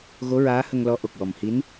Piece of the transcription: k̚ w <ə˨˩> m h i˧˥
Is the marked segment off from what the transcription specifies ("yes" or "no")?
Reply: yes